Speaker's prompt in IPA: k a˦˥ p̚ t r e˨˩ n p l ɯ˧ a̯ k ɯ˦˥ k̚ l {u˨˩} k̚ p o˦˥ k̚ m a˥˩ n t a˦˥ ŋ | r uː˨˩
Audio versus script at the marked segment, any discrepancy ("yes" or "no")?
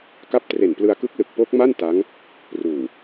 yes